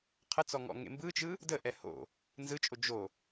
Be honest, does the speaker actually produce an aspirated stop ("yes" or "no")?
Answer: yes